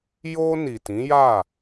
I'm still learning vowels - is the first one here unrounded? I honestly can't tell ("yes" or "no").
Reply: no